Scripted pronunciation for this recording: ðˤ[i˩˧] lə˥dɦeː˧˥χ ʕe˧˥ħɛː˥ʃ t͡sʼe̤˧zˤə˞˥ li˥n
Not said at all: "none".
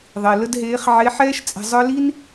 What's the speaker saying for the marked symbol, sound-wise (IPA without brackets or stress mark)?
i˩